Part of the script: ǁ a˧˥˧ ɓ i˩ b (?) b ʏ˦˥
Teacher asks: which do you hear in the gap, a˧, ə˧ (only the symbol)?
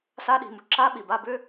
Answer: a˧